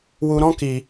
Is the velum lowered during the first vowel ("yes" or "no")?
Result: no